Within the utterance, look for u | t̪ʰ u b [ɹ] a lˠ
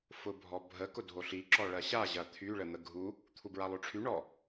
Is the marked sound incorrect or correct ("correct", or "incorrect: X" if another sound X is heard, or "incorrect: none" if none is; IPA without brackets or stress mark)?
correct